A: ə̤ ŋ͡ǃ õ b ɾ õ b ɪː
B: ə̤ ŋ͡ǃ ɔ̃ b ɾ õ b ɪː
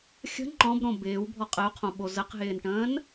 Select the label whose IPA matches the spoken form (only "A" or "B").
B